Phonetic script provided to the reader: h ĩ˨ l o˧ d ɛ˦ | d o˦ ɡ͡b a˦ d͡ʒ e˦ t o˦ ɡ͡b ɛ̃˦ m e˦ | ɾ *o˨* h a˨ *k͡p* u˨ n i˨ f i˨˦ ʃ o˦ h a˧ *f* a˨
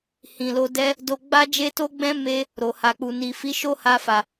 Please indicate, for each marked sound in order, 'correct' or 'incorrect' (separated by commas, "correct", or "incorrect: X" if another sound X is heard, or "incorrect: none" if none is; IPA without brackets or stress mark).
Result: correct, correct, correct